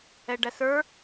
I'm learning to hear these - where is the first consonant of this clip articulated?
retroflex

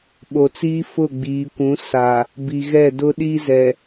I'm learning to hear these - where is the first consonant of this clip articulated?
lips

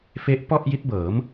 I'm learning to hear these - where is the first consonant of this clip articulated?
lips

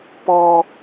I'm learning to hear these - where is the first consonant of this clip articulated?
lips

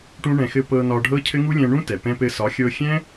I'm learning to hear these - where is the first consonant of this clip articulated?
retroflex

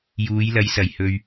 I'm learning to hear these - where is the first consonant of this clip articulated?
palate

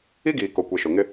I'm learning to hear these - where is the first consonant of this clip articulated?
velum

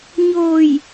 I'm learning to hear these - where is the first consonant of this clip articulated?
palate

